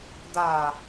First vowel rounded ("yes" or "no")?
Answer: no